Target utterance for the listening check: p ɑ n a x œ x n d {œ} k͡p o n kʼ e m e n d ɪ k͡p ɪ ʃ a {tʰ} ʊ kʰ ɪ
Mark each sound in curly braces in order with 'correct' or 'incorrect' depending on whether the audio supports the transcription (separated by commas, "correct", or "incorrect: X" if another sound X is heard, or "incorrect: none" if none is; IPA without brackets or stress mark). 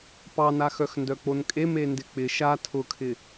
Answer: correct, correct